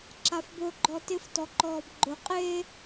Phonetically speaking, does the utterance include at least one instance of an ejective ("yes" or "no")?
yes